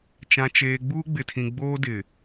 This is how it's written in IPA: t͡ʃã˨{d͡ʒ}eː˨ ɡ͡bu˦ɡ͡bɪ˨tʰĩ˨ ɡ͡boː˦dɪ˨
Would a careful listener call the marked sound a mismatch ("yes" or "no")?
yes